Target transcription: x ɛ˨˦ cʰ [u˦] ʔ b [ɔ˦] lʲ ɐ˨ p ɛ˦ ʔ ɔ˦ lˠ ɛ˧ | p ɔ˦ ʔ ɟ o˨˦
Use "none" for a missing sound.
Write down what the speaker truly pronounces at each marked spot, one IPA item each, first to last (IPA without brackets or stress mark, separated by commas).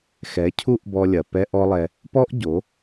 u˦, ɔ˧